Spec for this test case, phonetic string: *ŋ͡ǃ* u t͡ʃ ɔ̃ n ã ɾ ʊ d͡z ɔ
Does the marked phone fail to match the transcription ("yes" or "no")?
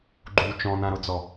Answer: yes